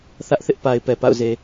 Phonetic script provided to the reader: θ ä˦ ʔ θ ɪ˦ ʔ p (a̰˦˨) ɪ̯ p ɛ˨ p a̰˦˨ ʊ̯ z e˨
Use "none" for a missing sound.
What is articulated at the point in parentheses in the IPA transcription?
a˨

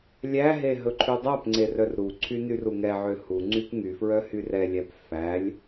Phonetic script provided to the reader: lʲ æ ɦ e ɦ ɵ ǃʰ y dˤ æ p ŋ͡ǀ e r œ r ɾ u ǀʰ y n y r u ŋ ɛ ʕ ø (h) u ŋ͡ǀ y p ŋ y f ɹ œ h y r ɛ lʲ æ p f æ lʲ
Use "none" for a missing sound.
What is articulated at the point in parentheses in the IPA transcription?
h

